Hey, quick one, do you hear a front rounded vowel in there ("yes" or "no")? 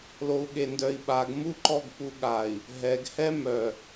yes